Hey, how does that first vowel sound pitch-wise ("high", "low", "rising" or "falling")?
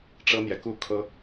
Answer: high